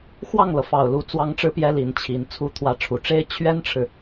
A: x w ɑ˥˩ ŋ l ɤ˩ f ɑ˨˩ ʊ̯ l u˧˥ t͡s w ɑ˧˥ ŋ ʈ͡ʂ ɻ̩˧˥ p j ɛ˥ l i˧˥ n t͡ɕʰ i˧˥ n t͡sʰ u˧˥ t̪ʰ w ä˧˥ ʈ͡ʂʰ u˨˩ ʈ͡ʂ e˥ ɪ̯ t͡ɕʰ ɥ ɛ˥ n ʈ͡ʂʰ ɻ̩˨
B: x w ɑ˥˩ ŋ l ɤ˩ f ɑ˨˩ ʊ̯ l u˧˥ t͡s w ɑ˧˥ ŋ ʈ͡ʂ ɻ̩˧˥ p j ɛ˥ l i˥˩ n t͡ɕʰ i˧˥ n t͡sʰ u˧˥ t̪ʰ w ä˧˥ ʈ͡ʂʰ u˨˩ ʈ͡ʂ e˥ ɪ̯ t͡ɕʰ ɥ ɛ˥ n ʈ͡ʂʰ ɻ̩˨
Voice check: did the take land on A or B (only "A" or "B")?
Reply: A